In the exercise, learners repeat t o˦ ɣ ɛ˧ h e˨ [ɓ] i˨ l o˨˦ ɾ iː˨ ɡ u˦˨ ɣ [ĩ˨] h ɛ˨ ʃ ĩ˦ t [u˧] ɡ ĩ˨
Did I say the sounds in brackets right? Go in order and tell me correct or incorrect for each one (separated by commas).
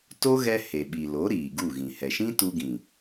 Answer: correct, correct, correct